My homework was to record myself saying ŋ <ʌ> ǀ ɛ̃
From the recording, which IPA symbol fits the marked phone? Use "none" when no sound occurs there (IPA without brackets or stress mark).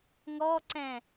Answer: ɔ